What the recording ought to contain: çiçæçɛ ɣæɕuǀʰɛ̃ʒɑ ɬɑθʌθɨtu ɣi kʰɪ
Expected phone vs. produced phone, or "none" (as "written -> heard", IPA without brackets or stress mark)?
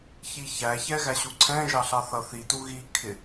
ɨ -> i